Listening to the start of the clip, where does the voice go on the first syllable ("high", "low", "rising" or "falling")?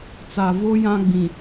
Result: low